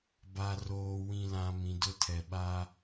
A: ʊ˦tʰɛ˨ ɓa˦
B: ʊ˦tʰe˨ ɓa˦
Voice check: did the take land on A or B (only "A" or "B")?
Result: A